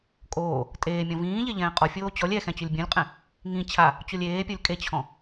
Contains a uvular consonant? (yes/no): yes